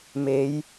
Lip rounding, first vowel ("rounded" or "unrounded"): unrounded